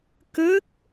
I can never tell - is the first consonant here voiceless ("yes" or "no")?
yes